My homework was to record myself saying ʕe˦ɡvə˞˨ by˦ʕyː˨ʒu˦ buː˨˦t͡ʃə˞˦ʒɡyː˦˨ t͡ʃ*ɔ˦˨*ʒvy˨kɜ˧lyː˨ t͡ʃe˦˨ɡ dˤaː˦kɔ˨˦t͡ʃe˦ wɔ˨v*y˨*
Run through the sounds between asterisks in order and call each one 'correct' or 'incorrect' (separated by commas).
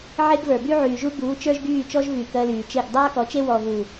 incorrect, incorrect